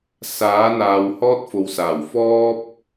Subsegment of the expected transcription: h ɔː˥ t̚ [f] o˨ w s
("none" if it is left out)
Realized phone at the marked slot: f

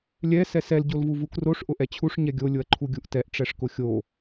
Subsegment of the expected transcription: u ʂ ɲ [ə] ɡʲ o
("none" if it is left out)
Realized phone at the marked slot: ɛ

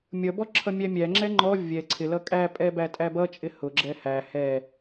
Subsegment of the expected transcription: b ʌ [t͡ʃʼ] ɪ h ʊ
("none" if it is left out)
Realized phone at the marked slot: t͡ʃʼ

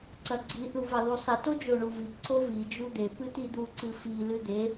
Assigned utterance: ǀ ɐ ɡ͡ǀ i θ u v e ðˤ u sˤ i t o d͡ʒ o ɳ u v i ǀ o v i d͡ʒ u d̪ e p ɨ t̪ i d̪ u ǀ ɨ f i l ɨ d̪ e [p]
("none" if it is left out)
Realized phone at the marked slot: none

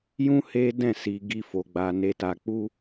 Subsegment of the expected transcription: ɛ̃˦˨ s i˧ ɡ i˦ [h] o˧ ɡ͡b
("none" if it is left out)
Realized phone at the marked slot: f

